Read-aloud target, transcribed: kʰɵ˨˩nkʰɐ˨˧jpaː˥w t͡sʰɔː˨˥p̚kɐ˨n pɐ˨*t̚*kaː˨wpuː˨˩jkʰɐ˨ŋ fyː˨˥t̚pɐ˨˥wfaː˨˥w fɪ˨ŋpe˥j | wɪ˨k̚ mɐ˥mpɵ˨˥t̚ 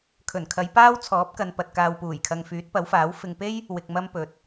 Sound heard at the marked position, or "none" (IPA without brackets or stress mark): t̚